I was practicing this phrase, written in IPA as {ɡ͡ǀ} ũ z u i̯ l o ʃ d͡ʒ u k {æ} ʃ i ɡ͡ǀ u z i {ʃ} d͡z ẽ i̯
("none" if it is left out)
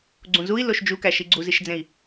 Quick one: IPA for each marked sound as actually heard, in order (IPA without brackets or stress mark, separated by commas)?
ɡ͡ǀ, æ, ʃ